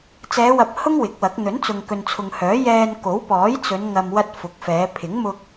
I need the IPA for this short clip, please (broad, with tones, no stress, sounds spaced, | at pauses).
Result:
t͡s ɛː˨˧ w ɐ˨ p̚ h ʊ˥ ŋ w ɪ˨˥ k̚ w ɐ˨˥ k̚ n̪ ɵ˨˥ n t͡s ʊ˨ ŋ k ɵ˨ n t͡sʰ ʊ˨ ŋ h œː˨˥ j ɛː˧ n k o˨˥ w p ɔː˨˥ j t͡s ɵ˨˧ n ŋ ɐ˨ m w ɐ˧ t̚ f ʊ˨˥ k̚ f ɛː˨˧ pʰ ɪ˨˥ ŋ m ʊ˧ k̚